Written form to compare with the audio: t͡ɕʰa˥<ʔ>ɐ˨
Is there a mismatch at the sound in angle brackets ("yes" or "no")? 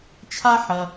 yes